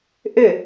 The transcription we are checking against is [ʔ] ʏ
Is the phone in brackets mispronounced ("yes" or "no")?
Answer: no